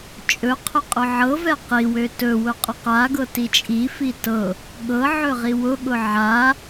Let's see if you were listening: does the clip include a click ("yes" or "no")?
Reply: no